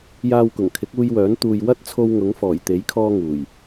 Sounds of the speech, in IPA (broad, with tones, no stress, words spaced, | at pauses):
jaː˧wkʊ˨˩ŋkʰɪ˨˥k̚uː˧j wœː˨˥n t̪uː˨jwɐ˥t̚t͡sʰo˧w ŋʊ˨˥ŋfɔː˨˩jt̪e˨˥jkʰɔː˧ ŋuː˨˩j